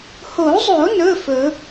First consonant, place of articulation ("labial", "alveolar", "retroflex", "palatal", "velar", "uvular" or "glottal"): glottal